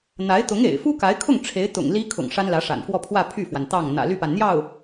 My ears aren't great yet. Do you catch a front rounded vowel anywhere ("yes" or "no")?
yes